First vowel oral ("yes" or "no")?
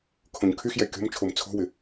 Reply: no